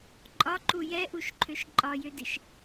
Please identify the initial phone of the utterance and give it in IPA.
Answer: ǃʼ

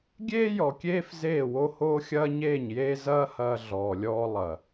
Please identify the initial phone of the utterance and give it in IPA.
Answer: ɡʲ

